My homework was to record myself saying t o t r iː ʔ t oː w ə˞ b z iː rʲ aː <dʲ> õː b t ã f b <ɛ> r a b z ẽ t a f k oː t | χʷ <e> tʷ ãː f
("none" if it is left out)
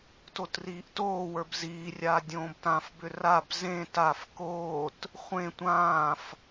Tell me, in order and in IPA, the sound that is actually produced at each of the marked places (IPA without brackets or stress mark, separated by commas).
dʲ, ʏ, ẽ